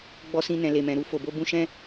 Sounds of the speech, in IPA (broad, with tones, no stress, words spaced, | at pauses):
ɡ͡bɔ˧sĩ˧nɛ̃˨ le˨mɛ̃˨ ɾu˧fo˨bo˧ bũ˧ʃɛ̃˦